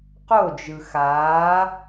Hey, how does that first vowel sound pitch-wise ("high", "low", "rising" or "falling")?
falling